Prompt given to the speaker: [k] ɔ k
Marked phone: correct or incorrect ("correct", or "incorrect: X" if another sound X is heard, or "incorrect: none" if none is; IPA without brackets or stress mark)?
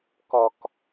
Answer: correct